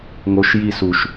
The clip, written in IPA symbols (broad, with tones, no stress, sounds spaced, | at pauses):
ŋ o˨˥ ʃ j i˦˨ s u˨˩˦ ʃ